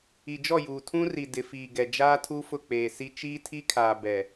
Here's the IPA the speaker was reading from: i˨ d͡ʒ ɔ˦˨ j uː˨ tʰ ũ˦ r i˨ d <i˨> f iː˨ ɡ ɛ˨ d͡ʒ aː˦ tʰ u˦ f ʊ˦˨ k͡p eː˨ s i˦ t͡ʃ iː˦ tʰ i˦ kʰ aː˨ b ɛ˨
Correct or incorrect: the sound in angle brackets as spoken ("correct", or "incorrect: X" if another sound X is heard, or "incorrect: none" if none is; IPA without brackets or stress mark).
incorrect: ɪ˨